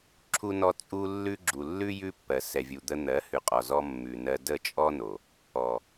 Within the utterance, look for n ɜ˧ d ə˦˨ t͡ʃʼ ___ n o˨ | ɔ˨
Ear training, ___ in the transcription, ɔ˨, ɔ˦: ɔ˦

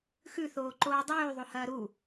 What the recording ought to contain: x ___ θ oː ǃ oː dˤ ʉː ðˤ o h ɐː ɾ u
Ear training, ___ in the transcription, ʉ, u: ʉ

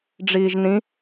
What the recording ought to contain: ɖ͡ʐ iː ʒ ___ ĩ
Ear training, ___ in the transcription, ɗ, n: n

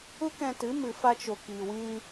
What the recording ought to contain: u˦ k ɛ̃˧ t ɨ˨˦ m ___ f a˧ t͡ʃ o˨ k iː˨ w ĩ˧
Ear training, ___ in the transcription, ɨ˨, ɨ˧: ɨ˨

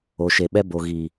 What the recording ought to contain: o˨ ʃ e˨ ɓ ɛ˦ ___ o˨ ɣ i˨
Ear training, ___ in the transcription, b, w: b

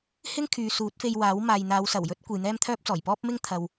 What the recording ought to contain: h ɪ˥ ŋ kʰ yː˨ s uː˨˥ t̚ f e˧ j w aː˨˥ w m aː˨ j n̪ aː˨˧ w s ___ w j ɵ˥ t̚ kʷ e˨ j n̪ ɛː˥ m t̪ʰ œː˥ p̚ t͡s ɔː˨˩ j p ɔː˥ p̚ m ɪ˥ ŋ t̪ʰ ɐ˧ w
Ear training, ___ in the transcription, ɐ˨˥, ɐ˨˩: ɐ˨˩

